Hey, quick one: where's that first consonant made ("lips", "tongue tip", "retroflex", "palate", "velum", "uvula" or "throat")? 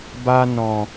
lips